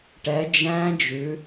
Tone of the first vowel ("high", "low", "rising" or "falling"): rising